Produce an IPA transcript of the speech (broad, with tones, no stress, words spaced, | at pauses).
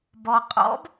bɔ˨qʼɔ̰˨˥b